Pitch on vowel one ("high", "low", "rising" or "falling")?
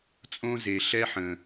high